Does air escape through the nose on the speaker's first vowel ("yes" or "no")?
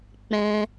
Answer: yes